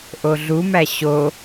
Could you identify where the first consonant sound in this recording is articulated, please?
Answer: glottal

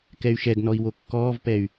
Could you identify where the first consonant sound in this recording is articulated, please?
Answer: velar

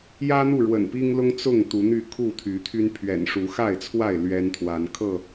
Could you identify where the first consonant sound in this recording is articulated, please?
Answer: palatal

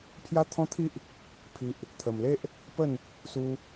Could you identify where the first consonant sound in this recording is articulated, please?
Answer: labial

